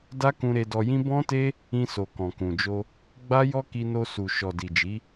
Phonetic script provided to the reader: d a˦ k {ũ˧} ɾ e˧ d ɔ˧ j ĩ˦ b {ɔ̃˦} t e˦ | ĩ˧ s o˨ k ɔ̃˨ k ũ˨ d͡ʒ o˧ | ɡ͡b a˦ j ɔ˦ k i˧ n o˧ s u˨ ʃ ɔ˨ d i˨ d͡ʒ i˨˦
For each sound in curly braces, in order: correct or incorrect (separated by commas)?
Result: correct, correct